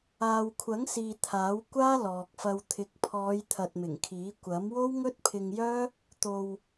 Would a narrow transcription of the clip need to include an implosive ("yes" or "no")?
no